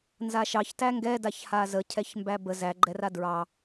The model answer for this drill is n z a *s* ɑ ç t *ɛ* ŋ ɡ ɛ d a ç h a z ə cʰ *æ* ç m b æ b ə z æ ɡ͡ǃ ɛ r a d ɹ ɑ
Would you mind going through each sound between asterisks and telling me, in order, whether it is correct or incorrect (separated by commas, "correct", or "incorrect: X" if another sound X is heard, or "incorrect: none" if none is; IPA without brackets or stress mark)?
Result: incorrect: ʃ, incorrect: æ, incorrect: ɛ